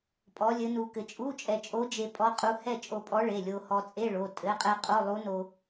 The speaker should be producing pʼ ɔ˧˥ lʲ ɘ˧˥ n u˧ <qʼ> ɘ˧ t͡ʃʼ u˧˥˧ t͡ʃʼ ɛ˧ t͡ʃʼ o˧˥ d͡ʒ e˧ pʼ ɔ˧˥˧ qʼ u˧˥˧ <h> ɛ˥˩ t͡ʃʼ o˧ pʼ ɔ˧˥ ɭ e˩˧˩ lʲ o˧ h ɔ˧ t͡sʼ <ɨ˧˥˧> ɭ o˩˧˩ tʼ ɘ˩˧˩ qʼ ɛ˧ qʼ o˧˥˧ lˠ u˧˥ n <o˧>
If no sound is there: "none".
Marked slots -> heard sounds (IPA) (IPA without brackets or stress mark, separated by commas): k, h, e˧˥˧, o˧